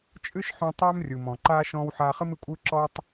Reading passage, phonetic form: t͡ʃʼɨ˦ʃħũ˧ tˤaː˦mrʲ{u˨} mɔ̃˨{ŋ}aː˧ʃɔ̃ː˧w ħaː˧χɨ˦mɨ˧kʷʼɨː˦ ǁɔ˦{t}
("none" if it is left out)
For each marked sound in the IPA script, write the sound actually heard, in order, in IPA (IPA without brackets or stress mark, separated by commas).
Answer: u˨, ǃ, tˤ